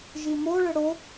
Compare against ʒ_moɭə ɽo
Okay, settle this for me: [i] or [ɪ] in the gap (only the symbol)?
i